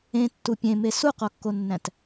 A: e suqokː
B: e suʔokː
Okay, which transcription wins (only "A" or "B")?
A